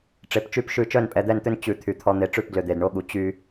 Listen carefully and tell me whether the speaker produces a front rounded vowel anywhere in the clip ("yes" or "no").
yes